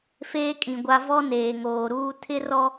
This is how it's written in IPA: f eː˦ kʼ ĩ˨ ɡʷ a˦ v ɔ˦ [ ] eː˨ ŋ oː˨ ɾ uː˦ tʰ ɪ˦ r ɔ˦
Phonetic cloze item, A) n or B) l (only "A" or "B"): A